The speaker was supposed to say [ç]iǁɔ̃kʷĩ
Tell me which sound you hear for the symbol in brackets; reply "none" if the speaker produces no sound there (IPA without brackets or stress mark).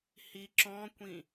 h